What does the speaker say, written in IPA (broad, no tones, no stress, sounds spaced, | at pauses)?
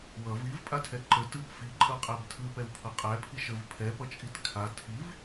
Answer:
w ʌ v i v pʼ a tʰ ɛ ǃ ə t ɯ p f i ǃʼ ʌ qʼ æ b tʰ ɯ p ɛ w pʰ ʌ qʼ æ pʰ i ʃ ə v pʰ ɛ p ʌ t͡ʃʼ i t kʰ a tʰ i v